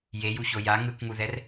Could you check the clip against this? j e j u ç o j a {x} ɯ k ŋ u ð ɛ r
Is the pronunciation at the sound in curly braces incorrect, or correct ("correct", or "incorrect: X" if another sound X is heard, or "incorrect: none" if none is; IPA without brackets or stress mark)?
incorrect: ŋ